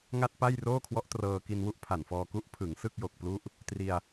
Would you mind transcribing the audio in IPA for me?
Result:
ŋ a˥˩ t̚ p a˥˩ j r oː˥˩ kʰ w ɔ˦˥ ʔ t r ɤː˧ k i˧ n w u˥˩ ʔ pʰ a˨˩ n f ɔː˧ k u˦˥ ʔ pʰ ɯ˩˦ ŋ s ɯ˥˩ k̚ j o˨˩ k̚ p l u˦˥ ʔ | t r i˧ a̯

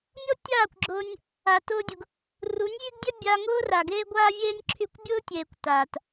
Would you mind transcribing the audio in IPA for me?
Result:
mʲ ɤ˦ tʲ aː˦˨ kʷ ɡ͡ǁ ʊː˧ nʲ | a˨ t ʊː˦ dʲ ʊ˧ ɡ | r u˨˦ nʲ vʲ e˦ ɡ dʲ ɛ˦ bʲ a˧ ŋ ʊː˦ r a˨ ɡ eː˦ ɡʷ aː˦ vʲ eː˦ nʲ ǁʰ y˧ kʷ bʲ ʊː˦ tʲ eː˨ kʷ t aː˨ t

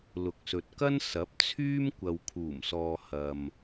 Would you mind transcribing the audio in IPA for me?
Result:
l ʊ˨ k̚ s ɵ˨ t̚ k ɐ˥ n s ɐ˨˥ p̚ t͡sʰ yː˥ m kʷ ɐ˨ w kʰ uː˨˩ m s ɔː˨ h ɐ˨ m

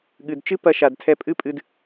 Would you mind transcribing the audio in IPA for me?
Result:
ɠ ɨ˨ d t͡ʃ ɨ˦ p ɐ˧ ʃ a˨ d tʰ ɛ˧ pʼ ɨ˦ pʼ ɨ˧ d

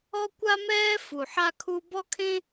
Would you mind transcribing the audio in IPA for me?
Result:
ɔ˥ kʷ a˥ m ɛː˥ f u˨˩ ħ a˥ kʰ u˥ b ɔ˥ kʰ ẽ˥

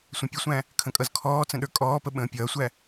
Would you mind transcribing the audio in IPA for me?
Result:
sʷ ə̃ pʲ ə sʷ æ̃ | kʰ ə̃ kʼ ʌ z kʰ ɔː t͡s ə̃ ɗ ə˞ kʼ ɔː p ə ɓ ə̃ː pʲ ʌː sʷ æ

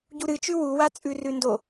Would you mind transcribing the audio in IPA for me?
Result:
ɟ u ɾ ɨ t͡ʃ ʉ w u w a t͡sʼ ʉ r ʉ n d o

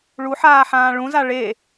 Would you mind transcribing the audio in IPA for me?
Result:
ɭ u ħ aː ħ ãː ɭ ũ z a ɭ e

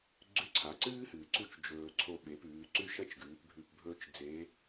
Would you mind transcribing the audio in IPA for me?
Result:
ɡ͡ǀ ʉ˧˥ ǀʰ a˩˧ ǀ ɨː˥ h ɨː˩ ǀ u˥ t͡ʃ d͡ʒ ɵː˧ ǀʰ o˧ ɓ e˩˧ p ʉː˩˧ ǀ ʉ˥ ʃ ɐ˥ t͡ʃ ɡ ʉː˩˧ p bʱ ʉ˧ p bʱ ɵː˥ t͡ʃ d͡z e˧˥

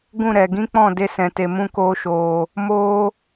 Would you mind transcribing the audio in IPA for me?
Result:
ɡ ũ˦˨ ɾ ɛ˨ ɡ ĩ˦ k͡p ɔ̃˦˨ d e˦ s ɛ̃˨ t e˨ m ũ˦ k oː˧ ʃ oː˨ | m oː˦

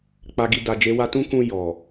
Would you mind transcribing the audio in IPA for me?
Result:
k͡p a˨ ɡ i˨ d a˨ d͡ʒ e˨˦ w a˧ t ũ˦ k ũ˧ j ɔ˨

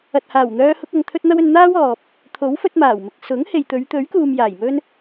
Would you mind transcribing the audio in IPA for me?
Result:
ɐ˨ t̚ h aː˨˩ w n̪ œː˧ h ʊ˧ k̚ ɐ˨ ŋ t̪ʰ ɵ˥ t̚ n̪ ɐ˥ w ɵ˧ n n̪ aː˥ w ɔː˨ p̚ | t̪ʰ o˨˥ w f ɵ˧ t̚ m aː˨˩ w m ɪ˨ k̚ s ʊ˨˥ ŋ h e˨ j t̪ ɵ˨˧ ɥ t̪ ɵ˨˥ ɥ k uː˨ m j aː˨˩ j m ɵ˥ n

